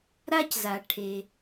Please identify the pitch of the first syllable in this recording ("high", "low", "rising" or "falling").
high